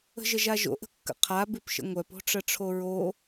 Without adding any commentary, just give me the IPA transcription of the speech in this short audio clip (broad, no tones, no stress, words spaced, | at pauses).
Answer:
ə̤ʒəʒaʒo̰ ʔə̤kːə̰qʰa bʉpʃə̰ŋʷœp o̤ʈ͡ʂəʈ͡ʂʰoɹo